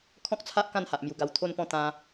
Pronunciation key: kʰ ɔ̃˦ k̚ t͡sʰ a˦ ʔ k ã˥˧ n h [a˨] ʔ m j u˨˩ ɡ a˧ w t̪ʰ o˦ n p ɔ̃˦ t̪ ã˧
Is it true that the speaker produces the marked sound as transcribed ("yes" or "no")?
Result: yes